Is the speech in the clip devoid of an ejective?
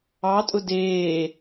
no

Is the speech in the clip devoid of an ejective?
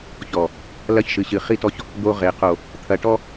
yes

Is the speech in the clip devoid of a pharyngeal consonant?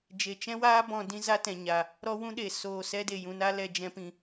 yes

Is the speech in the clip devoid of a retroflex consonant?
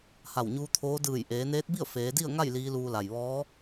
yes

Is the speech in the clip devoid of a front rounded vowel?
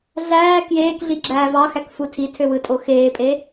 no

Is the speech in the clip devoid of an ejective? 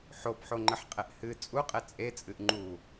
no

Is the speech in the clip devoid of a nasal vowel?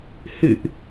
yes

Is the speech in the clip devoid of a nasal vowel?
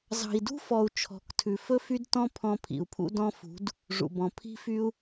no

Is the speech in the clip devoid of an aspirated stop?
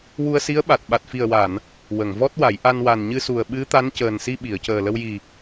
yes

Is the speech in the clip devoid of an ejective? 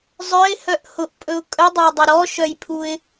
no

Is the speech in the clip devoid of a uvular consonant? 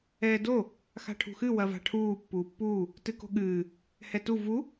yes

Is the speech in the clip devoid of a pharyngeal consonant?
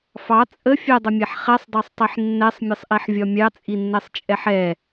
no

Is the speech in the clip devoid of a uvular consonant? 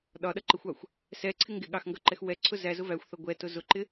yes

